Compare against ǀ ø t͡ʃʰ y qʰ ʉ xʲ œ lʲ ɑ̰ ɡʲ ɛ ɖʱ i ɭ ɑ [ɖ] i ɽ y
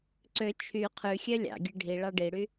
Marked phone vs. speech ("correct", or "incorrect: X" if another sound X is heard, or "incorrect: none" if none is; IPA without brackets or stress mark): correct